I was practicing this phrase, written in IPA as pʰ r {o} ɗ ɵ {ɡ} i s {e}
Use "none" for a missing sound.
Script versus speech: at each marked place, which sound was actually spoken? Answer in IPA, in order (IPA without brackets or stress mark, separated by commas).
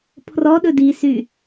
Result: ɔ, d, y